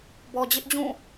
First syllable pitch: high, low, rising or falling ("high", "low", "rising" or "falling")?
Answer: low